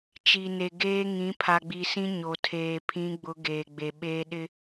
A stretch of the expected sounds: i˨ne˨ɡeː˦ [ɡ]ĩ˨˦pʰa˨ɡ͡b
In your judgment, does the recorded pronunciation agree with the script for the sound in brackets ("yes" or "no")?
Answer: no